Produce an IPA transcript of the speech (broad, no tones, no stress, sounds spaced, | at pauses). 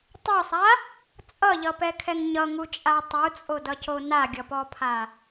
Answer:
tˤ u sˤ a | t͡sʼ ʌ ʎ ʌ p ɛ kʰ ɛ ŋ ɲ ʌ ŋ u t͡ʃʼ a tˤ u t͡sʼ o d ʌ c o n a ɡʲ ʌ p ɔ pʰ a